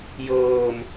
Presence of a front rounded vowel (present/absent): absent